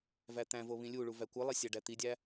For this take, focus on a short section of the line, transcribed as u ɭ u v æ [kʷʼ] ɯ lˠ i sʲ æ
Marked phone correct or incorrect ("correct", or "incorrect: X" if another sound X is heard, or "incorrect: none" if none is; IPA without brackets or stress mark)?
incorrect: kʷ